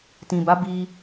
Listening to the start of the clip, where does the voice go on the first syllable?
low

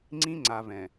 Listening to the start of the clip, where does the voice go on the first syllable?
high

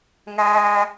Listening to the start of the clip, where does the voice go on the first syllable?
low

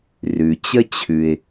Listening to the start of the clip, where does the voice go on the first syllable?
low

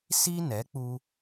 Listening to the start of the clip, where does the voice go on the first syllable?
high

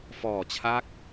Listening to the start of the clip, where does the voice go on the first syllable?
low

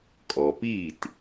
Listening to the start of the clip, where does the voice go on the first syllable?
low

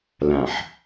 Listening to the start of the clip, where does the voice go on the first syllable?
low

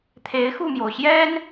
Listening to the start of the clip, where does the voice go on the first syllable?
rising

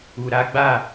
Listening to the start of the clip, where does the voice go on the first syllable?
low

